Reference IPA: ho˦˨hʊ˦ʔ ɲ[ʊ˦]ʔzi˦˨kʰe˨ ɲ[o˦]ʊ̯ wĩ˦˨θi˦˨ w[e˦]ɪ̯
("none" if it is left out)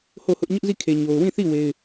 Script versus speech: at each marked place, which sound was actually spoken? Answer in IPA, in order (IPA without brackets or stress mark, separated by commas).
ʊ˦, o˨, e˦